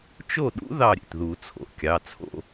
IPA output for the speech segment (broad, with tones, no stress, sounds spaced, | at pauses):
t͡ʃ o˥˨ ɗ ṵ˦˥ ð ɑ˥˨ ɾʲ ḛ˩ t ð u˨˩˦ t͡sʰ o̰˩ kʲ ɑ˩˧˩ t͡sʰ o̰˥˨